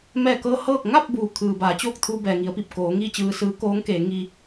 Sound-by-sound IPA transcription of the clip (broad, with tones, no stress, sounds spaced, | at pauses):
m ɛː˧˩ k ɤː˧ h ɤː˥˨ k̚ ŋ a˥˨ p̚ b uː˩ kʰ ɯː˩ b aː˩˧ t͡ɕ oː˥˨ k̚ t̪ʰ uː˧ b ɛː˩ ŋ i˩˧ ə̯ p i˧˩ p̚ k oː˩˧ ŋ iː˥˨ t͡ɕ ɯː˧ s ɯː˧˥ k oː˧˥ ŋ k eː˩˧ ŋ i˧